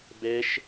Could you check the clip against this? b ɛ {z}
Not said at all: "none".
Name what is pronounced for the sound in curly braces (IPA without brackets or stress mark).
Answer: ʃ